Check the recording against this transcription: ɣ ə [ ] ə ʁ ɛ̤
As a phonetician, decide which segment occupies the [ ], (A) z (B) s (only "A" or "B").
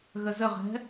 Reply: A